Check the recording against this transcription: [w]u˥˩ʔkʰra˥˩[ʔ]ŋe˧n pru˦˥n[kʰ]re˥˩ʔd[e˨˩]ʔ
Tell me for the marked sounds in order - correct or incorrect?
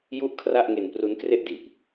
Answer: incorrect: j, correct, incorrect: k, incorrect: i˨˩

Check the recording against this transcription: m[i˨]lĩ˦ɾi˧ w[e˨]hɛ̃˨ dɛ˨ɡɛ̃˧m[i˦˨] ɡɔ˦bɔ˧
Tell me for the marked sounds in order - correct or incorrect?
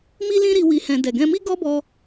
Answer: incorrect: i˦, incorrect: i˨, incorrect: i˦

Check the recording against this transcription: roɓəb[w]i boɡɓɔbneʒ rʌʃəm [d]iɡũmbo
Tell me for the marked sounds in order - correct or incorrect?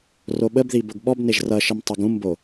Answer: incorrect: ð, incorrect: tˤ

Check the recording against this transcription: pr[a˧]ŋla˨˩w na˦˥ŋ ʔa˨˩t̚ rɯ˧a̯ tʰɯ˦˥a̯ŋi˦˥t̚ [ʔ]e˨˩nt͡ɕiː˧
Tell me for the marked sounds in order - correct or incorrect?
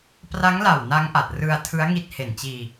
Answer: incorrect: a˦˥, incorrect: h

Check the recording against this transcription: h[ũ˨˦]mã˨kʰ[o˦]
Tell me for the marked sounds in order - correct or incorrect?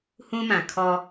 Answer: incorrect: ũ˦, incorrect: ɔ˦

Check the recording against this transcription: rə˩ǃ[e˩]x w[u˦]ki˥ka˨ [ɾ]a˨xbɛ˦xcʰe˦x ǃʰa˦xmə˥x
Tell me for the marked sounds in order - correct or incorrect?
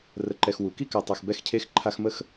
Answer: incorrect: ɛ˩, incorrect: u˩, incorrect: tˤ

